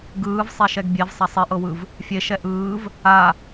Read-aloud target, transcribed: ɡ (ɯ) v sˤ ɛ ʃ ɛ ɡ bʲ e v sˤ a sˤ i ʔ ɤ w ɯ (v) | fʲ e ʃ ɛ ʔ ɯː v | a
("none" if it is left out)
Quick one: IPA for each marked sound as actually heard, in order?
ɯː, v

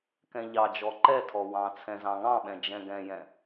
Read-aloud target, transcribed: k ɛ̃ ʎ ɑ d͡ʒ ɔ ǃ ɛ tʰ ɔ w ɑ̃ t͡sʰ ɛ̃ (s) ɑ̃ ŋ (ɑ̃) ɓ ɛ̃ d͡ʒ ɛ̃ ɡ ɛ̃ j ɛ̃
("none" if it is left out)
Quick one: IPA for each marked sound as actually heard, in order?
z, ɑ̃

